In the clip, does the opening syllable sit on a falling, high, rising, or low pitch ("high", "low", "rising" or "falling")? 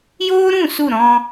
high